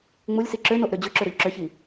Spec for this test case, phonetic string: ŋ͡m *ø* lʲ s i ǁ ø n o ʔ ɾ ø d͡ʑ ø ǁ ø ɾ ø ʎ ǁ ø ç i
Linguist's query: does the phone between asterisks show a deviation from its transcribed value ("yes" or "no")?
yes